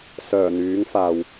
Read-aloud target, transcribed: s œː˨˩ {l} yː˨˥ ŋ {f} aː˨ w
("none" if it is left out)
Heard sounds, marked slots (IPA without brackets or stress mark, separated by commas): n̪, f